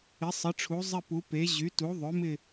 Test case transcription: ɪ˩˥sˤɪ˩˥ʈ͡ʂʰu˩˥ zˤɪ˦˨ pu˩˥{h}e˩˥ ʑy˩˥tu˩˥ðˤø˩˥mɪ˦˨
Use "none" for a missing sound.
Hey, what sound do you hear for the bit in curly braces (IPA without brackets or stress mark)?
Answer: p